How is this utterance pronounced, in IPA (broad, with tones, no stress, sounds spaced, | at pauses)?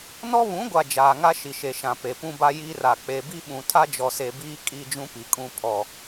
n ɔ˦ β ũ˨˦ ɡʷ a˨ d͡ʒ aː˨ ŋ a˦ ʃ i˨ ʃ e˨ ʃ ã˨ p e˨ p ũ˦ b a˦ j iː˦ r a˨ k͡p e˨ b i˦ ɓ ũ˨ tʰ a˦ d͡ʒ ɔ˨ s e˨ b iː˦ kʼ i˦ d͡ʒ ũ˦ p i˨ kʼ ũ˦ pʰ ɔ˦